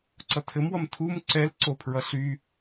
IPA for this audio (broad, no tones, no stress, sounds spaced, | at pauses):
ǀ ʌ tʰ ɘ m w ʌ m tʰ u m ǀ ɛ l ǀ o pʰ ɹ ʌ ɬ y